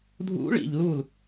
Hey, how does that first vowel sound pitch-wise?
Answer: rising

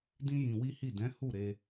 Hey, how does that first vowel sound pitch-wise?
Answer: high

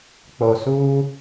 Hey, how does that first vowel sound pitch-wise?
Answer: low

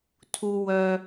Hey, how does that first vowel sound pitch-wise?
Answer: low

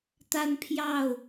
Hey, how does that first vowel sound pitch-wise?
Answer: high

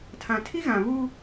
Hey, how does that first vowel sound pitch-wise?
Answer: low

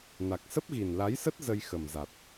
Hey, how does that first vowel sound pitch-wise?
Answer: low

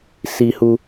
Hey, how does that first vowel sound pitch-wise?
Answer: low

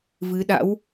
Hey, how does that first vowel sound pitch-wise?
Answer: rising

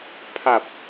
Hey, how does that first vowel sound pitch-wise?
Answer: low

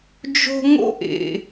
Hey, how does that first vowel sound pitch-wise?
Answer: high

